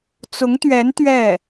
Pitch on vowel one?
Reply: rising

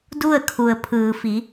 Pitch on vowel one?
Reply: falling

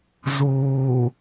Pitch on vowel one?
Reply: low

